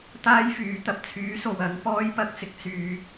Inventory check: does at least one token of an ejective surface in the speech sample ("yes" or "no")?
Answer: no